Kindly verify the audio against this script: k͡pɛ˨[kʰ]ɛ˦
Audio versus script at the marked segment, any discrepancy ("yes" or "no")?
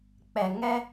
yes